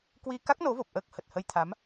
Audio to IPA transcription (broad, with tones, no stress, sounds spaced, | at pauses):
k w i˧ k a˦˥ k̚ n o˨˦ v o˨˩ p̚ ʔ əː˦˥ k̚ h ə˨˩ t̚ h ə˧ j t̪ʰ a˨˦ m